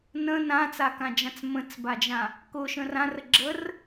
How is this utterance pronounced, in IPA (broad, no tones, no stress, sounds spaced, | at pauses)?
n ə̃ n ã t͡s a k ã d͡ʒ ã t͡s m ə̃ t͡s b a d͡ʒ ã | k ʊ ʃ ə̃ r ã r ə ɡ͡ǁ ə r